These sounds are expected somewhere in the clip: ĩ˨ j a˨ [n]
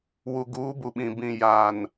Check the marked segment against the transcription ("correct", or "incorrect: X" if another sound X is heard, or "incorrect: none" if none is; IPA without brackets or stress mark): correct